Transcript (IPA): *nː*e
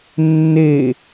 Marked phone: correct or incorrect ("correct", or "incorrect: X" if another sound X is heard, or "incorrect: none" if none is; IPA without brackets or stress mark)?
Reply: correct